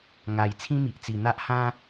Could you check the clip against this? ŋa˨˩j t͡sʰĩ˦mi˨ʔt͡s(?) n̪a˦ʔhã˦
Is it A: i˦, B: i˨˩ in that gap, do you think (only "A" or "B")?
B